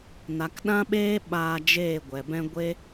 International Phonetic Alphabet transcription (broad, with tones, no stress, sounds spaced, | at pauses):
n a˨ k ɗ ã˦ ɓ eː˦ ɓ aː˧ d͡ʒ eː˦˨ ɡʷ ɛ˨ b ɛ̃˦ ɡʷ e˦